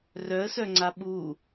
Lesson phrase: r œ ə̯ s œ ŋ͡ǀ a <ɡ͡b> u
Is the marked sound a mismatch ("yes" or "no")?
yes